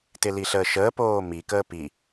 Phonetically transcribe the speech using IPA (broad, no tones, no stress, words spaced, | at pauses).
tɪliɬəːʃəː poːmi kəːpi